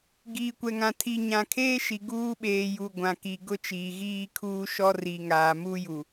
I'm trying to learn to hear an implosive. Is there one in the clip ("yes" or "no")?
yes